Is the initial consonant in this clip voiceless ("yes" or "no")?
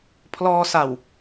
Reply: yes